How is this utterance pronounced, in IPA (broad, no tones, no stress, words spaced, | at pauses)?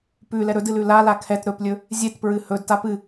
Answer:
pʉ lɛɾɵdɨl ʉlala kʰɛt ɾɵplʲɵ | zʲetpɹɨ hɵdtap ɨ